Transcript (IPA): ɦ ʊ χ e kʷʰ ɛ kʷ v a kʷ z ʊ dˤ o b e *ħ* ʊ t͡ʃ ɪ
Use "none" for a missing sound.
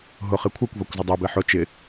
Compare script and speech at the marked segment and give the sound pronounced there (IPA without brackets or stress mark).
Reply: ħ